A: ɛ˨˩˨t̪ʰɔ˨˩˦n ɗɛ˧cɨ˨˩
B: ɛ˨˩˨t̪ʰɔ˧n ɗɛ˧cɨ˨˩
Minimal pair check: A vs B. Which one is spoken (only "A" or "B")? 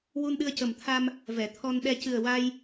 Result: B